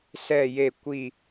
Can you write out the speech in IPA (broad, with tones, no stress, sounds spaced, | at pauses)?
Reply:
s ɛ˥˧ j e˥˧ kʷ i˥˧